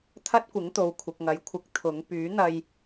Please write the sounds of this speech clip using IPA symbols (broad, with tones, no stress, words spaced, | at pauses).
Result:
t̪ʰɐ˥t̚kʷɪ˨˥ŋt̪o˨w kʷʰɪ˨k̚ŋɐ˨˥jkʷʰɪ˨˥k̚ t̪ʰʊ˨˥ŋ pyː˨˥n̪ɐ˧j